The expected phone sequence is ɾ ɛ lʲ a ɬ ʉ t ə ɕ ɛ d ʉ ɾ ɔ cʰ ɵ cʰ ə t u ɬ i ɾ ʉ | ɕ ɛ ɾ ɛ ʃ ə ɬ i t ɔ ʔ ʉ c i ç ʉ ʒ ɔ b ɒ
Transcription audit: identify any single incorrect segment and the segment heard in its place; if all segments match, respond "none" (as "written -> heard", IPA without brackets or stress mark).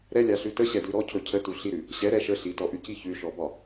ʒ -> ʃ